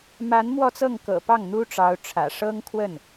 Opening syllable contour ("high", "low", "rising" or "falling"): rising